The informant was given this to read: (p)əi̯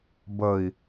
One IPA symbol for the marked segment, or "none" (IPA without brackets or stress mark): b